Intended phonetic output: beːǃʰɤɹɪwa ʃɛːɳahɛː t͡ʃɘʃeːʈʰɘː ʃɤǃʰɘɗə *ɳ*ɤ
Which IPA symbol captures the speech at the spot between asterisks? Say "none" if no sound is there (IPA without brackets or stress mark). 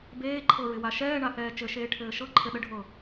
ɖʱ